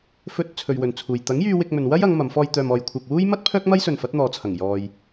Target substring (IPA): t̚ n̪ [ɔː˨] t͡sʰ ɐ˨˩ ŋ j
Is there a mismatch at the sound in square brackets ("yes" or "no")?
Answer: no